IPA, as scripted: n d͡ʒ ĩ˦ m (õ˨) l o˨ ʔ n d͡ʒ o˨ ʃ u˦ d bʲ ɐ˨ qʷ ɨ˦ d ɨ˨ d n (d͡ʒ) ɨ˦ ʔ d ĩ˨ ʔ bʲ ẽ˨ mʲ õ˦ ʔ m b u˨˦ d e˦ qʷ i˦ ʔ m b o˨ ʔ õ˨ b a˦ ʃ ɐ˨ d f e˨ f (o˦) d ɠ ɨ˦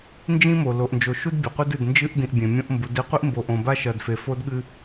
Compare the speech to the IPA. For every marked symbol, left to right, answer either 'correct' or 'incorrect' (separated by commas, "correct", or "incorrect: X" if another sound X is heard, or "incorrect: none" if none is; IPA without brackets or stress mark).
incorrect: o˨, correct, correct